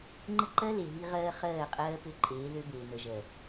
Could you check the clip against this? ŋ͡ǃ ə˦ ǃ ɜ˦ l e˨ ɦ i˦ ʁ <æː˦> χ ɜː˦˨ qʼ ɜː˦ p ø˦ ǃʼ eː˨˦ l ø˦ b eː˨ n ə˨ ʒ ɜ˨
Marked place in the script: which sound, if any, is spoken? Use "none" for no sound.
ɜː˦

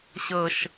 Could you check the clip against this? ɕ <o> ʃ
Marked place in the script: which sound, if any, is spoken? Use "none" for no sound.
ɤ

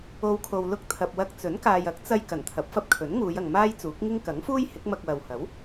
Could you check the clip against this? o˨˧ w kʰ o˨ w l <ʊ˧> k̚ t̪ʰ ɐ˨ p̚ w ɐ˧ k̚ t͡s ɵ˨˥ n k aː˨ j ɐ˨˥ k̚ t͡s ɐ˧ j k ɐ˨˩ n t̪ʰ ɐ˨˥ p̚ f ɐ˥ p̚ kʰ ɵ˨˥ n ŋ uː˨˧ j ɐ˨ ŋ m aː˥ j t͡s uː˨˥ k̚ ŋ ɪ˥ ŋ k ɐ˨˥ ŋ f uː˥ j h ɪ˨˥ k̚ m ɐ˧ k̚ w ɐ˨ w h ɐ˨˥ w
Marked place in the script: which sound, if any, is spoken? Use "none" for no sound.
ʊ˧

